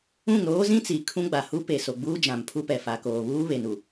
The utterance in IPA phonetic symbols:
ũ˦˨ ŋ ɾ oː˦ z ĩ˦ t͡s i˨ kʰ ũ˦ ɡ͡b a˨ h u˦ p e˨ s o˨ ɡ͡b uː˦ d͡ʒ ã˨ m pʰ u˦ p ɛ˨ f a˨ k oː˨ β uː˦ β e˨ n u˨

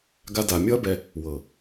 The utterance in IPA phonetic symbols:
ɡ a˧ d a˨ mʲ ɔ˦ ɐ̯ b ɛ˧ | w ɤ˨

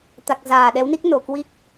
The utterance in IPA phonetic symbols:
t̪ a˨˩ k̚ z aː˨˩ ɗ ɛ˨˦ w n i˦˥ k̚ n o˧˩ k w i˦˥ k̚

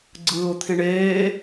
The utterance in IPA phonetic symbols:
ɡ͡ǀ ɯː ʊ̯ t̪ʰ ĩ ɳ eː

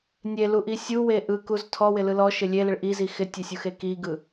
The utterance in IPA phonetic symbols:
nʲ e l u ʔ i sʲ u w e ʔ ɯ k u z tʰ ɔ w ɪ l ɯ l ɔ ʃ ɪ lʲ e l ɪ ɭ ʔ i z i x ɪ tʲ e sʲ u x e k i ɡ ɯ

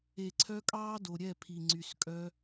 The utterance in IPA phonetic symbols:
e˨ ǀʰ œ˧ kʼ ɑː˦ d o˨ ɾʲ ɛ˦˨ pʰ i˨ ŋ͡ǀ y˨ s kʼ œ˧

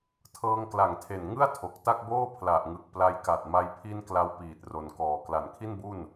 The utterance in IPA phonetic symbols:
tʰ ɤː˧ ŋ k l a˨˩ ŋ tʰ e˨˩ n ŋ ɯ˥˩ a̯ tʰ o˨˩ k̚ t a˥˩ k̚ b oː˥˩ pʰ l a˨˩ ʔ ŋ ɯ˨˩ k̚ p l a˧ j k a˨˩ t̚ m a˧ j pʰ i˧ n k l a˧ w p iː˨˩ t̚ r o˨˩ n k ɔː˨˩ k l a˨˩ n kʰ i˥˩ n b u˥˩ n

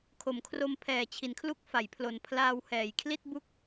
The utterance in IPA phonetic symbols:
kʰ o˩˦ m kʰ r o˧ m pʰ ɛː˨˩ t͡ɕʰ i˩˦ n kʰ l u˦˥ k̚ f a˩˦ j pʰ l o˨˩ n pʰ l aː˧ w h ɛː˨˩ j kʰ l i˥˩ t̚ b u˥˩ k̚

